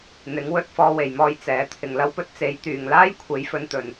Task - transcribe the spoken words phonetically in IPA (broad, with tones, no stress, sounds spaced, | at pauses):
n̪ ɪ˨˥ ŋ w ɵ˧ t̚ f ɔː˧ w e˨ j m ɔː˧ j t͡s ɛː˨˥ t̪ʰ ɪ˨ ŋ l ɐ˥ w p ɵ˥ t̚ t͡s e˨˥ j t̪ yː˨ ŋ l aː˥ j kʷʰ e˨˥ j f ɵ˨˧ n t̪ ɵ˨ n